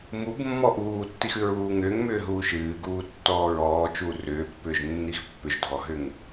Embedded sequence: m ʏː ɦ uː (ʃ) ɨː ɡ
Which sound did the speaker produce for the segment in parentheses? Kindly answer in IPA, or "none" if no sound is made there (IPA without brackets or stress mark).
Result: ʃ